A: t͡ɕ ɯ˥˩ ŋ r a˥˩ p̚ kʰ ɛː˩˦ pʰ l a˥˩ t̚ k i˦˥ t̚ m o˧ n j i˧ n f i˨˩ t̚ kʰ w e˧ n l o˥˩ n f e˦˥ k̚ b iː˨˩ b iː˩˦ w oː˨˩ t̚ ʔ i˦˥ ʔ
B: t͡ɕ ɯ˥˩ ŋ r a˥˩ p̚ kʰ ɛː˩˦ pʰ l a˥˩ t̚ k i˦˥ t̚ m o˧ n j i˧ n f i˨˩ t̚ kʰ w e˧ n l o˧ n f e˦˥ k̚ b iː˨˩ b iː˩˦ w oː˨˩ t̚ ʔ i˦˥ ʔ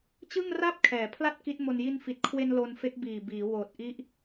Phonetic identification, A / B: B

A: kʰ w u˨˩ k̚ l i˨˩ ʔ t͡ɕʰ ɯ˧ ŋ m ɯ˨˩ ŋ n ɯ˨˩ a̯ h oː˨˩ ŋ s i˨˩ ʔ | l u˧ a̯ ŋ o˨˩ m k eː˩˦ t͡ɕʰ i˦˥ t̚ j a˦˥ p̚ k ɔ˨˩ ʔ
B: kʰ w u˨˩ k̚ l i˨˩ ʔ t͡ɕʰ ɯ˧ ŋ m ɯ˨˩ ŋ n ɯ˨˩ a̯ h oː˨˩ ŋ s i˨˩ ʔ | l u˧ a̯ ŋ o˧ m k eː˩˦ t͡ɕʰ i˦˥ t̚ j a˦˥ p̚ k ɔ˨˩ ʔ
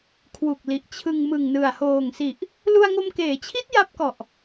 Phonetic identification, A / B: B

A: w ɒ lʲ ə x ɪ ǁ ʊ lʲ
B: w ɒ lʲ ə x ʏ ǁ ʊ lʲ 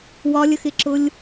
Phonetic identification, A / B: A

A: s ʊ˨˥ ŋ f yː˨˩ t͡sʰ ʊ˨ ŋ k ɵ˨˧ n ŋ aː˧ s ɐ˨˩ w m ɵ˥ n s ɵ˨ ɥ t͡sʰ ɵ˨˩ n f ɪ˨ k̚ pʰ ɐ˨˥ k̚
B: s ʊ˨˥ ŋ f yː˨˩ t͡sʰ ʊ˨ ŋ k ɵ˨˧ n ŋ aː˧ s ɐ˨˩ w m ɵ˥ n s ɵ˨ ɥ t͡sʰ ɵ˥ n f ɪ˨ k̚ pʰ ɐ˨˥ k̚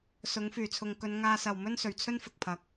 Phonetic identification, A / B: B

